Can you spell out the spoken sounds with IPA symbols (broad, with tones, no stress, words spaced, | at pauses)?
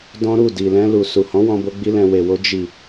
dɔ̃˦ɾu˦˨ di˨lɛ̃˧lu˨ su˨hɔ̃˨˦wɔ̃˧bo˧ ɡ͡bi˧lɛ̃˨ we˨wo˧ d͡ʒi˨